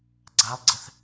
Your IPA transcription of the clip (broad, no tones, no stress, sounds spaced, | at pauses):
ɡ͡ǀ a lˠ ɡ͡ǀ ə θ